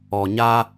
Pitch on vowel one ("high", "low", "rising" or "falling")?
low